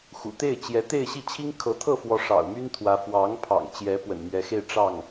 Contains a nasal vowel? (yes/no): no